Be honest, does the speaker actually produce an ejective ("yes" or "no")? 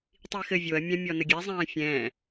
no